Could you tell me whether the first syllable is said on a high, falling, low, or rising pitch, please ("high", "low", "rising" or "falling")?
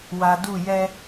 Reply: low